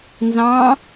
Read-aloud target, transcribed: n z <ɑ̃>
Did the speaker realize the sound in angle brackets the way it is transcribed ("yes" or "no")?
yes